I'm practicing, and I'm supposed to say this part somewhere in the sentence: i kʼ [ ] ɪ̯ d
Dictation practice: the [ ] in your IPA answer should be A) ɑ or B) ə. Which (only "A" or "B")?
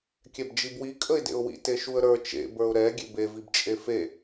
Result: B